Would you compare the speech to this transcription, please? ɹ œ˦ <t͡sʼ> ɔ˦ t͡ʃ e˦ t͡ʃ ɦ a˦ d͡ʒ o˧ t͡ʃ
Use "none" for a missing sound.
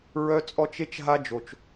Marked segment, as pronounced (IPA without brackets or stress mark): t͡sʼ